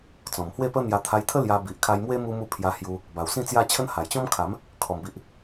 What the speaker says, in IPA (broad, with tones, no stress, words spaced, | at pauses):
t͡sɔ̃˨˩mhwe˥˧pə˦n̪ja˧ t̪ʰa˧jt̪ʰə˦ lja˧ bi˨ʔkʰa˧jmwe˦ mu˧mu˧ pʰja˧hju˧ | ba˨˩wsĩ˥˧ t͡sja˥˧t͡ɕʰə˦n ha˨˩jt͡ɕɔ̃˦mkʰa˨˦m | kʰɔ˨˩mbi˨ʔ